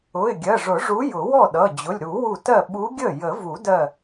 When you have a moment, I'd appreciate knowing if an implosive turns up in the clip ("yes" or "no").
yes